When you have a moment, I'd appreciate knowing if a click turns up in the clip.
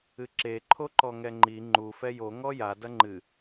yes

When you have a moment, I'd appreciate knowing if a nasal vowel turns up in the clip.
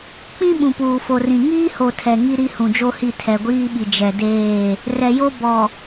yes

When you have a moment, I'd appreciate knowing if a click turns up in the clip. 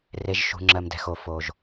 yes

